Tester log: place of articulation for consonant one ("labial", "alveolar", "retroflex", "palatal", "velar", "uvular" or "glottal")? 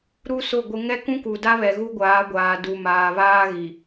alveolar